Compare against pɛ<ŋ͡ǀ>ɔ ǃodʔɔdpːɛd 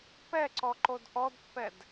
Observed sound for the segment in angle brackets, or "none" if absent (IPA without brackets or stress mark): ǀ